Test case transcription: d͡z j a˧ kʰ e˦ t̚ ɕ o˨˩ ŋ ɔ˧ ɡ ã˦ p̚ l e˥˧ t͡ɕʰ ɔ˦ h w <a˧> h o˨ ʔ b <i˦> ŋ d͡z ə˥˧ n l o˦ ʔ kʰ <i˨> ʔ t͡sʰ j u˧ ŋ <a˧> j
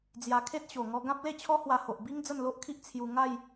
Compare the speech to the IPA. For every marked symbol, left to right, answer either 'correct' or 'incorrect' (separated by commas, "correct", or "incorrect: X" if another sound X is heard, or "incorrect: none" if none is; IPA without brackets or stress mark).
correct, correct, incorrect: i˦, incorrect: a˥˧